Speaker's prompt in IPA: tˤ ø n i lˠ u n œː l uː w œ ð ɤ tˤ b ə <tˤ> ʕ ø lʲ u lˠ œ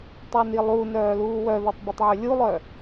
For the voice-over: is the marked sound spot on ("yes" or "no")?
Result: yes